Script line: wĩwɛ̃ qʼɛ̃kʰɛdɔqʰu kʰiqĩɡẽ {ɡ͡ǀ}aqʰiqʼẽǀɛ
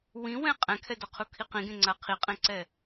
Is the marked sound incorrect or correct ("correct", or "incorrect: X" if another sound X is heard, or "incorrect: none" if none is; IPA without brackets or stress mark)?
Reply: incorrect: ŋ͡ǀ